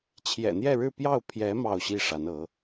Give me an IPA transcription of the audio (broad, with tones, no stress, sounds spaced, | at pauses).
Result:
t͡ɕʰ j ɛ̰˨˩ n̪ j ɛ˥˧ ɻ ɻ̩˥˧ p j ɑ˥˩ ʊ̯ pʰ j ɛ˧˥ m ɑ˥˧ ʊ̯ ɕ i˥˩ ʂ a˧˥ n ɤ˧˥